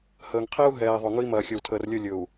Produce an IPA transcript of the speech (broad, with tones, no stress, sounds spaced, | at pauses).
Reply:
h əː˨ ŋ qʰ i˦ u̯ ɦ ɛː˨ i̯ ðˤ ɵ˨ ŋ ɵ˦ i̯ m ɐː˨ xʲ ɵ˨ w tʰ əː˨ r lʲ ɵ˦˨ lʲ ɵ˨ u̯